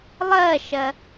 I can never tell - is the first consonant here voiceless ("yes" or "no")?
no